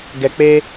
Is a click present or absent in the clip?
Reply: absent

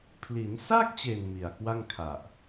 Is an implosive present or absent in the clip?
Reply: absent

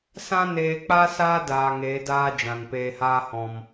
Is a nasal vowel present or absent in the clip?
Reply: present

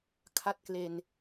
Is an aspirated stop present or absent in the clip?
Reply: present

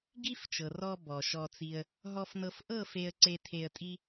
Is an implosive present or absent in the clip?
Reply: absent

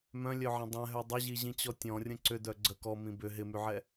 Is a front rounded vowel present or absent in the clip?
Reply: present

